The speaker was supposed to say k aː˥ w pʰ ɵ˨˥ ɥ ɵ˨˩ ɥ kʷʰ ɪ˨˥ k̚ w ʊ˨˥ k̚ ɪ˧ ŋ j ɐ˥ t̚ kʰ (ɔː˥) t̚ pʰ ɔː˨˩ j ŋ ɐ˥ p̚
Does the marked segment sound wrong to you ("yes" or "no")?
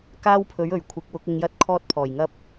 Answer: no